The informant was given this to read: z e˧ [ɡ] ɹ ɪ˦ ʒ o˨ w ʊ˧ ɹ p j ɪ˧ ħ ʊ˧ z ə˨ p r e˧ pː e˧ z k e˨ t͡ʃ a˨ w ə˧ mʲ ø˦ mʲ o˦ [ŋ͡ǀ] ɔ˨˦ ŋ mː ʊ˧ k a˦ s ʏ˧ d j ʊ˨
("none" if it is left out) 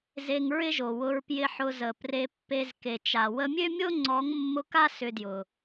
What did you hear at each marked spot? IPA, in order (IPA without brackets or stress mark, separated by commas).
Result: ŋ, ŋ͡ǀ